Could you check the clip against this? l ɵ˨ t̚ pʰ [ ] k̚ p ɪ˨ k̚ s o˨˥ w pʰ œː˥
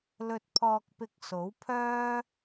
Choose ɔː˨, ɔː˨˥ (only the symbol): ɔː˨